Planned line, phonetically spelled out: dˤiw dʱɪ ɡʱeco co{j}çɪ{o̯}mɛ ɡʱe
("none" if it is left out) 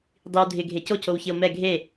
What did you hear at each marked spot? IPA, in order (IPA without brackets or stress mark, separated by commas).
w, o̯